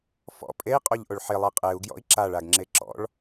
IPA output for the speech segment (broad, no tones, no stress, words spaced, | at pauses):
fɔ̰ pʼei̯qʼoʎʔoɭ ħɪlˠe qʼeu̯ ɡjɔ̰i̯ǁaɭaɡ ŋ͡ǁeǁɔ̰ɭ